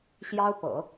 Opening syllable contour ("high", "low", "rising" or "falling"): high